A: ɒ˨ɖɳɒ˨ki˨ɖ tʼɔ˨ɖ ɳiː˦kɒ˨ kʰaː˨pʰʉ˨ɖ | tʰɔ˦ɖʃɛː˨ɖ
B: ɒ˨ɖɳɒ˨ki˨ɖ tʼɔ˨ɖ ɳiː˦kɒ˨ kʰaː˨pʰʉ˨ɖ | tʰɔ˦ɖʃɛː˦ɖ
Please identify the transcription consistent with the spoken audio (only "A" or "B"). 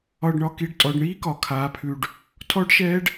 B